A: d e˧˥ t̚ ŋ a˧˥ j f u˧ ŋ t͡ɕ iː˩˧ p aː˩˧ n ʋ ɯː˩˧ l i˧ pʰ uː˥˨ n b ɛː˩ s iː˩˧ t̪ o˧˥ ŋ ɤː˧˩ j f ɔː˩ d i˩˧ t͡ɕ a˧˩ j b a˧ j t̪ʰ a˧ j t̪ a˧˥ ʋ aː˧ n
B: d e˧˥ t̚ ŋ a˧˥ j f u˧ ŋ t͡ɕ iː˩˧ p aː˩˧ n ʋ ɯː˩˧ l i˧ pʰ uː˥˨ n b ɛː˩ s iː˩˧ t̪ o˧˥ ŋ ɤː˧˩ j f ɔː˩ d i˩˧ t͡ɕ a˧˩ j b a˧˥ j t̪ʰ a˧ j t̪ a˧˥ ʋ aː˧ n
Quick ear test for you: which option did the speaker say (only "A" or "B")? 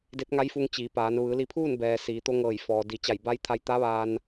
B